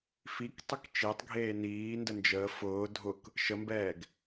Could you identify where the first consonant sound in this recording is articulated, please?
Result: labial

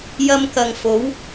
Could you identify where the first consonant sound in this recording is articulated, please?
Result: palatal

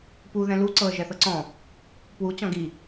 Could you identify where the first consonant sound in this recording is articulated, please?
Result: labial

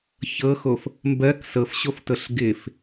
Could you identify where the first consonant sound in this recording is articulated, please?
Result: palatal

